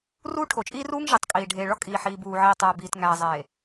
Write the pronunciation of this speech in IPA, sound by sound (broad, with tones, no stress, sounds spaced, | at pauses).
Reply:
r uː˦ ʈʰ o˨ t͡ʃʼ iː˦ r uː˦ ŋ ʒ i˨ tˤ kʼ iː˨ ɖʱ eː˨ ɭ ɒ˦ kʼ iː˨ ħ iː˨ b uː˨ ʕ iː˨ tˤ æː˨ b iː˨ t ŋ æː˨ zˤ eː˨